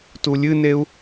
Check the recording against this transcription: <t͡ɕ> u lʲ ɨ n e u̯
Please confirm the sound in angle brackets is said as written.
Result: no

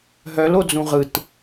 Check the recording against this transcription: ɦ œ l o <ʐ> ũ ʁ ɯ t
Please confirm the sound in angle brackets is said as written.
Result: no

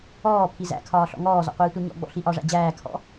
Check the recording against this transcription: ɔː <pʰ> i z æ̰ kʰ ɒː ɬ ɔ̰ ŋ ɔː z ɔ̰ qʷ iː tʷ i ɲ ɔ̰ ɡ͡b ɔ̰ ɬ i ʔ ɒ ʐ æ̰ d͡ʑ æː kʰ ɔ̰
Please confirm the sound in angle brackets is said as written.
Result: yes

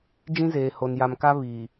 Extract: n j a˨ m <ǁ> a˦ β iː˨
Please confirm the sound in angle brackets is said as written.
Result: no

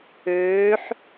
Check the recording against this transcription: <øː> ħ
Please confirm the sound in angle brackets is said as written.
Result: yes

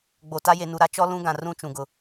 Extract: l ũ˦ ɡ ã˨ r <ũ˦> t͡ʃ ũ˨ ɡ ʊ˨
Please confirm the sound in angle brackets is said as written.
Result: yes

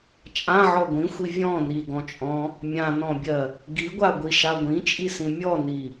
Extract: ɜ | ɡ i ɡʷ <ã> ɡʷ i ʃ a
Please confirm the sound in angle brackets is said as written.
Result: no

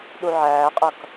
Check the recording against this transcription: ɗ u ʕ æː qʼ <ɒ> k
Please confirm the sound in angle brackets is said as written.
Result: no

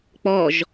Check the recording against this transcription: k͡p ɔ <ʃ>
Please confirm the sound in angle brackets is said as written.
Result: no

